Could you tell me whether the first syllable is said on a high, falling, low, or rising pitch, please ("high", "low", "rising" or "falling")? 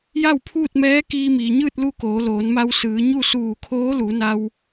falling